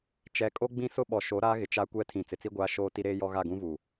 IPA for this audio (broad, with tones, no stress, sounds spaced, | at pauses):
t͡ʃ ɛ˨ kʼ o˦ ɡ͡b ĩ˦ s ʊ˦ ɓ ɔ˨ ʃ o˨˦ ɾ aː˦ ɣ ɪ˨ t͡ʃ a˦ kʷ ɛ˦ tʰ ĩ˨ t͡s ɪ˨ t͡s i˦ ɡʷ aː˦ ʃ oː˦ t i˦ ɾ eː˦ j ɔ˦ ɣ a˦˨ ɡ ũ˦ v u˨